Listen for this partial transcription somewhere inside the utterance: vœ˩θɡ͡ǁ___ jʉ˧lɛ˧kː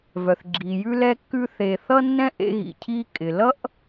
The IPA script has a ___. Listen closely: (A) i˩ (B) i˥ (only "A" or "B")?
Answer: A